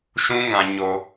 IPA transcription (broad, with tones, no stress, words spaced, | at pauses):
ʃũ˦ ŋã˦ ɲo˦